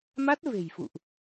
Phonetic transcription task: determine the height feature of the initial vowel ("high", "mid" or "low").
low